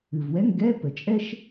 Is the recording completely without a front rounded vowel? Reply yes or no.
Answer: yes